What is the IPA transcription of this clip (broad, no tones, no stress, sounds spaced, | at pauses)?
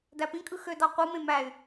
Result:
d æ p ĩ kʼ ɯ x ø d ɑ qʷ ɯ m ẽ m æ y̯